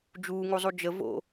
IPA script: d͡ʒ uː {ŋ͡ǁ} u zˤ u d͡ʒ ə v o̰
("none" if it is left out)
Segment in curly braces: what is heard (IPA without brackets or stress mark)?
ŋ